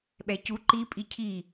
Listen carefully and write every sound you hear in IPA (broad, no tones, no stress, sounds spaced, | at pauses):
ɓ ɛ c u ǃ i pʼ i cʰ i